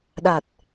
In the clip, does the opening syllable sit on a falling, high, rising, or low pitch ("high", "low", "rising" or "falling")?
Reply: low